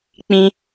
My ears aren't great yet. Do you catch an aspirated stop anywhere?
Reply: no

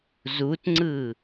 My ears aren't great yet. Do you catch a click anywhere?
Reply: yes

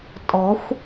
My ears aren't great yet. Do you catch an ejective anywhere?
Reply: yes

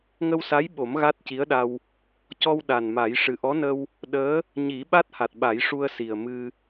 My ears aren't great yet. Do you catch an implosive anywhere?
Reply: yes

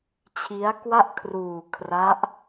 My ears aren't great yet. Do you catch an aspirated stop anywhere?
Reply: yes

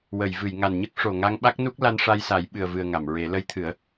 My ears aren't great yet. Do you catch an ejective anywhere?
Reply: no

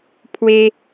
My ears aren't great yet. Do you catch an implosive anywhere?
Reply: no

